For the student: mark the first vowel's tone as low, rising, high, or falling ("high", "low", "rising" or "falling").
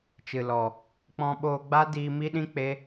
low